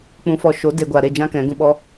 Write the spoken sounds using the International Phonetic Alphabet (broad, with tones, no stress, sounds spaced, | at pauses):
k͡p ũ˧ f ɔ˧ ʃ o˨˦ d e˦ ɡʷ a˧ ɾ e˦˨ d͡ʒ ã˦ k ɛ̃˨˦ ɡ ũ˧ ɓ ɔ˦